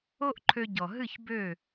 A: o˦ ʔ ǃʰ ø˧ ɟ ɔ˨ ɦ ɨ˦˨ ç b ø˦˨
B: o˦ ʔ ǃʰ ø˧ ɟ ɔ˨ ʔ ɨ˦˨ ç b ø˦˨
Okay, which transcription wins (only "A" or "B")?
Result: A